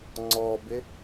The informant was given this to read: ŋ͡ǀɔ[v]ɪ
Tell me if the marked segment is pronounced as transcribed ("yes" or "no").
no